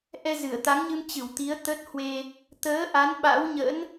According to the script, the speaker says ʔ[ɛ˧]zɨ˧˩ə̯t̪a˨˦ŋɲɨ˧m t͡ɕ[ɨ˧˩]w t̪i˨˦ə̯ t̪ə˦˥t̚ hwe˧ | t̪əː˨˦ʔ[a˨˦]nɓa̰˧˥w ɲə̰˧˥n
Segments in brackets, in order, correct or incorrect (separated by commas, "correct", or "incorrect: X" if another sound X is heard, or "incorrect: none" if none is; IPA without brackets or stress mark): correct, correct, correct